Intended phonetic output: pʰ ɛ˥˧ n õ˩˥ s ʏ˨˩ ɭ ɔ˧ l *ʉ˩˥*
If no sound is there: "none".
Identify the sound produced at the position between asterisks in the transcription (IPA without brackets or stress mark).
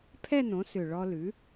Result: ʉ˩˥